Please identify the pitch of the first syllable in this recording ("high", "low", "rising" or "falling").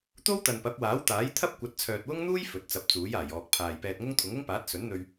high